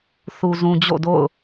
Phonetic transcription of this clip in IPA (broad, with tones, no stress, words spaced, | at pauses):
θu˨zũ˨ d͡ʑo̰˦˨do̰˦˨ʊ̯